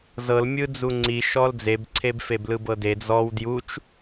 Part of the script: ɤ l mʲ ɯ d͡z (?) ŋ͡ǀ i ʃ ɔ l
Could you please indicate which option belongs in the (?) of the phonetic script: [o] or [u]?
u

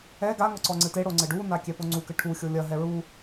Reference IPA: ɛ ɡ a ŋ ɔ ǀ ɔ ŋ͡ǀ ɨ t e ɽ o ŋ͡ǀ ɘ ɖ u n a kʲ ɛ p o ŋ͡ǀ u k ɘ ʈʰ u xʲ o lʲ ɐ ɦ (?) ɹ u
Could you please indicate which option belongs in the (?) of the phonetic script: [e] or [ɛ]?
ɛ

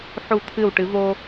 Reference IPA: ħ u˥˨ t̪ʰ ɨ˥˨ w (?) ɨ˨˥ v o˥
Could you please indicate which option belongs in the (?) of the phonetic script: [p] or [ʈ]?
ʈ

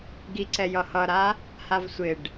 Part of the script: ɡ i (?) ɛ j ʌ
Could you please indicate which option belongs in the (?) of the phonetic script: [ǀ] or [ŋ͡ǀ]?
ǀ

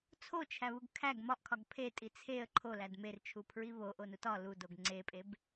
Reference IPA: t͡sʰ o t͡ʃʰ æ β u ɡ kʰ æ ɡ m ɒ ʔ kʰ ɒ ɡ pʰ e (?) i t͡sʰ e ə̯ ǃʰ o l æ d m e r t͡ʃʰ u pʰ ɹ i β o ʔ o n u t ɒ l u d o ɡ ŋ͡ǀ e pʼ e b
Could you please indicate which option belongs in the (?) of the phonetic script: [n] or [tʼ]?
tʼ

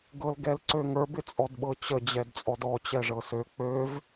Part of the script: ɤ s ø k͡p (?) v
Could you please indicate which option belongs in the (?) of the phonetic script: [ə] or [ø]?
ø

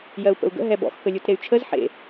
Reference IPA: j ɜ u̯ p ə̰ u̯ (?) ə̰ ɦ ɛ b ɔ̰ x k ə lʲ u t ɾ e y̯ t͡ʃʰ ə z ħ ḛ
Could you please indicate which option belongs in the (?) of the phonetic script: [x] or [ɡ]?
ɡ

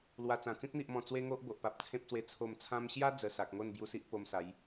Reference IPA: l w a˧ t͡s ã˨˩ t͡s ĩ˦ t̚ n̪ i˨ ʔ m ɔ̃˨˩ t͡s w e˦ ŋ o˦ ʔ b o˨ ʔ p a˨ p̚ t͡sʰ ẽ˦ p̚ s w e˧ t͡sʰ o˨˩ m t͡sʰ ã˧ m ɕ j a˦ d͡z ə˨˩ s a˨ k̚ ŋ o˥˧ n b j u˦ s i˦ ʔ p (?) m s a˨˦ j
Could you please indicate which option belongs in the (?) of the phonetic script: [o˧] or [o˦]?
o˧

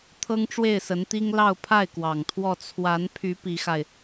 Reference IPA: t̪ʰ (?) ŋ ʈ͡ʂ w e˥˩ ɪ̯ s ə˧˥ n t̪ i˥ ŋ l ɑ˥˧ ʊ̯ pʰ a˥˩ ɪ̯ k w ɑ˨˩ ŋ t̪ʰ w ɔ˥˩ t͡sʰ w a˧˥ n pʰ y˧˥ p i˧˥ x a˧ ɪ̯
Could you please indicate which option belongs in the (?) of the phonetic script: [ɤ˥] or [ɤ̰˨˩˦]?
ɤ˥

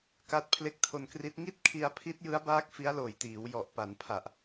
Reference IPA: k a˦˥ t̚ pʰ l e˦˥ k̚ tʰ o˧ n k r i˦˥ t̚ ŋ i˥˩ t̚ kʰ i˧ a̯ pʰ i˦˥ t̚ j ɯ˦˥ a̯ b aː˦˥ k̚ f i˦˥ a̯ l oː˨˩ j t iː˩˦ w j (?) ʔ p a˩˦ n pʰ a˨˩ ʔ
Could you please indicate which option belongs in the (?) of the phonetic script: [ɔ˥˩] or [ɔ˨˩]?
ɔ˨˩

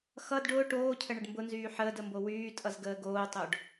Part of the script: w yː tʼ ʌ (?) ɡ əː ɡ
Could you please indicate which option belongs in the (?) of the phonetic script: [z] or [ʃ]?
z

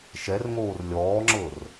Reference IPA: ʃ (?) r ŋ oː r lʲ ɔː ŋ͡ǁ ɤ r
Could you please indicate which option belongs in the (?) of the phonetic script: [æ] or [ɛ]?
ɛ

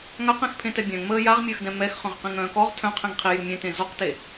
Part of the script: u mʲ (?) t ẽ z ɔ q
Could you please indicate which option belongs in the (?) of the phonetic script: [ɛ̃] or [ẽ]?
ɛ̃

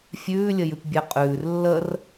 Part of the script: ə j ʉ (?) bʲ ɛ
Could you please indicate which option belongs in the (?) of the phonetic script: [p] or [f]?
p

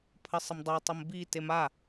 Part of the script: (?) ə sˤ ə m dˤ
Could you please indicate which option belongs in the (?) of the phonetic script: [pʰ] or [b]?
pʰ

